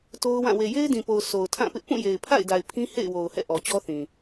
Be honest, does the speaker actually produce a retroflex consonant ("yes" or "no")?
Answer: no